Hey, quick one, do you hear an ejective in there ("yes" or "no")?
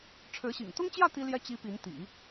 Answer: no